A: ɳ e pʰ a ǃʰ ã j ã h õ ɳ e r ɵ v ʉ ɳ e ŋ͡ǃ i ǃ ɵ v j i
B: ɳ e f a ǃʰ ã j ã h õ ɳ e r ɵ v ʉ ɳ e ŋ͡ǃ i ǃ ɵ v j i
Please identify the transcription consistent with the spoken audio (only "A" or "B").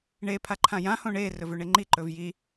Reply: A